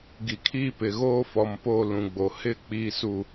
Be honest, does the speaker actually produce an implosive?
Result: no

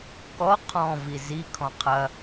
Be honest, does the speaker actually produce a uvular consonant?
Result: yes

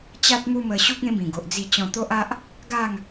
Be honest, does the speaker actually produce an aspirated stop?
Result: no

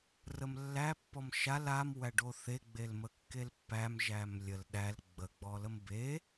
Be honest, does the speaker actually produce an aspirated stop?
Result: no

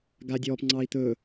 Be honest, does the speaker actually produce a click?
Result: yes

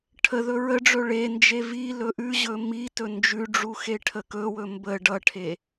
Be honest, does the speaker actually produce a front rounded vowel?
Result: no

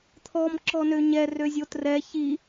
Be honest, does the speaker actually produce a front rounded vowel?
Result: yes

